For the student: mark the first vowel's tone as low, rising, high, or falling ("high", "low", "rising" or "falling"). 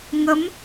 rising